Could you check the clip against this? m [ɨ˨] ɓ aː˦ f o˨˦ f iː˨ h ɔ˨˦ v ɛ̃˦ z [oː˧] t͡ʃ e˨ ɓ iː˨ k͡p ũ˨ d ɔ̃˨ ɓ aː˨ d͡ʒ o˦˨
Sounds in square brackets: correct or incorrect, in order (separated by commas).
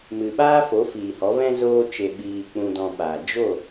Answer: correct, correct